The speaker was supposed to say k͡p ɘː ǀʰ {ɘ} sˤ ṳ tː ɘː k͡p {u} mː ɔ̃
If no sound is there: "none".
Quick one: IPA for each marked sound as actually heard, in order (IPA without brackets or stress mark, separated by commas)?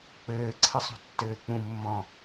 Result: ɘ, ũ